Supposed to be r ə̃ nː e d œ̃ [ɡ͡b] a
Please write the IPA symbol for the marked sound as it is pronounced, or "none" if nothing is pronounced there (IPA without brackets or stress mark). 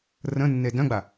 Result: ɡ͡b